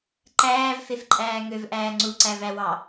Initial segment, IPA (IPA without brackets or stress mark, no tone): ǃ